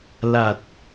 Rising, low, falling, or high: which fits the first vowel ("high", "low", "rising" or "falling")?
low